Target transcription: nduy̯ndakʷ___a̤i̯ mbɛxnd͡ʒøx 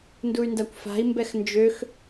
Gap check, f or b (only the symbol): f